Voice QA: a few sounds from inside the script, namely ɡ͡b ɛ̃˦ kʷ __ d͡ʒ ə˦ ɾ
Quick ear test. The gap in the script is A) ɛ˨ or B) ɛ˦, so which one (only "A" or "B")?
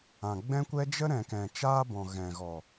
B